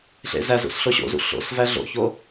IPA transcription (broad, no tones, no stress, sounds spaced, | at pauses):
ɬ ḛ z æ z ṵ s ɬ o ɕ o̰ z ṵ ɬ o̰ s v æ ɮ o̰ ç o